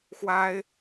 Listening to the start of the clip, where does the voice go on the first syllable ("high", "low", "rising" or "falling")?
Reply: high